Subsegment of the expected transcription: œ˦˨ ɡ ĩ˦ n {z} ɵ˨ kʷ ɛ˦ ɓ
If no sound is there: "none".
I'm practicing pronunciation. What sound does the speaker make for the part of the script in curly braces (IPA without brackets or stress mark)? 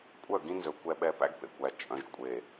z